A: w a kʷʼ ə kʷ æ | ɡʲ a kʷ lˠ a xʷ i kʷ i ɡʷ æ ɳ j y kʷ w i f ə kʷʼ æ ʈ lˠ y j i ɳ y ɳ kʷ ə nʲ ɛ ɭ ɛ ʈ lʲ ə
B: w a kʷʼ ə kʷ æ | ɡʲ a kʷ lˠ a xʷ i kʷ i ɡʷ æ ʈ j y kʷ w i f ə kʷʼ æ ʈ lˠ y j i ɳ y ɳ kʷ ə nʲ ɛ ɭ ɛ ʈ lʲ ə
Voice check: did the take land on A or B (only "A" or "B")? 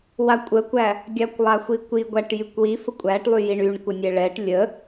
B